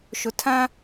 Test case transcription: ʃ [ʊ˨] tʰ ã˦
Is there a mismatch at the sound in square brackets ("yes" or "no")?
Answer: no